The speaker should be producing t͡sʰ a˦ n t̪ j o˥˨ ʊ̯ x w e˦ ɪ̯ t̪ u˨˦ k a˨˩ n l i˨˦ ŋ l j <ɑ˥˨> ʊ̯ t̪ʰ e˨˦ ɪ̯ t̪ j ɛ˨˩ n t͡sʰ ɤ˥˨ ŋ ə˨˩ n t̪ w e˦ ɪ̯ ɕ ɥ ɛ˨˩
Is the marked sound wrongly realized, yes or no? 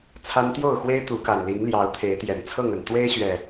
yes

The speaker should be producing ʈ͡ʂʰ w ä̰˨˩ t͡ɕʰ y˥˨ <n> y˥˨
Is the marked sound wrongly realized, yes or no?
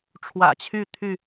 yes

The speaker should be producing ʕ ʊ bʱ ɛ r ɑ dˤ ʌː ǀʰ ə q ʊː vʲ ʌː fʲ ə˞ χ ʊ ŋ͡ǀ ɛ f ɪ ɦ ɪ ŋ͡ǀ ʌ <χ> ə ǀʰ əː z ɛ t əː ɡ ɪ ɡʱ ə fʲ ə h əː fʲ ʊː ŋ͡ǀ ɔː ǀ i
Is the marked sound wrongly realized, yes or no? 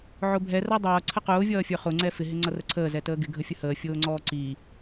yes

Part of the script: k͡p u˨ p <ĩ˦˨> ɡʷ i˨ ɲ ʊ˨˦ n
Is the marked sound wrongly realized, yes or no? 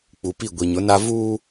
yes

